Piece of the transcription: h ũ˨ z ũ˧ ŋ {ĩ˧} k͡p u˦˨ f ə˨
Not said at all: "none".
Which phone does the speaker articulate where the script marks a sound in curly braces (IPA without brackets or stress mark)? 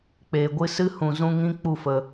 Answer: ĩ˧